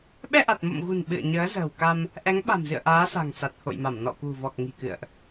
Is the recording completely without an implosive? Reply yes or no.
no